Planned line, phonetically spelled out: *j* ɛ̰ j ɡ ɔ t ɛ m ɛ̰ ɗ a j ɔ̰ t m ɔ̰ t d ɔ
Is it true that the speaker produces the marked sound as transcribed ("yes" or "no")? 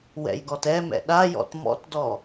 no